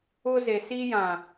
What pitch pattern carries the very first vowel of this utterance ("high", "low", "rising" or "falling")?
high